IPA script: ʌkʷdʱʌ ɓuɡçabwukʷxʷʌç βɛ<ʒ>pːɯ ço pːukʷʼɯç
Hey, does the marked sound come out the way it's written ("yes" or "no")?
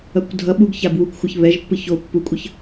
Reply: yes